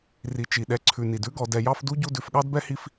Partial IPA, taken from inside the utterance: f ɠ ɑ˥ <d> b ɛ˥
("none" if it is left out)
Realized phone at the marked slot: d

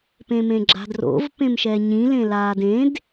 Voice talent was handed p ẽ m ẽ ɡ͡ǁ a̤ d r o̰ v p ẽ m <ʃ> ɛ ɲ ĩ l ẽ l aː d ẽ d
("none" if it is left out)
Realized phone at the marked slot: ʃ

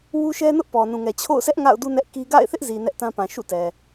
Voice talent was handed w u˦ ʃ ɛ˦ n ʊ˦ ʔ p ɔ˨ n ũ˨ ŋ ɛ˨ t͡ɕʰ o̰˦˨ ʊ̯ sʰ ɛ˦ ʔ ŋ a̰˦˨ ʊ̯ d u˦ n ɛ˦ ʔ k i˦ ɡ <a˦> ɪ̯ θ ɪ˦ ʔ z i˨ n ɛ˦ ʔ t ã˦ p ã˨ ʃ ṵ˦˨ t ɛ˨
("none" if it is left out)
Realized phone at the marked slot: a̰˦˨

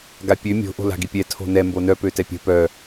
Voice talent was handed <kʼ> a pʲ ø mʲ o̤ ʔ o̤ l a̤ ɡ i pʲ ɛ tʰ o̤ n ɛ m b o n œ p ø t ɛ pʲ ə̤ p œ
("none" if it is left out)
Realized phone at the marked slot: ɡ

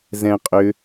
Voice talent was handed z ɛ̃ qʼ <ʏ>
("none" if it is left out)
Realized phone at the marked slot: ʏ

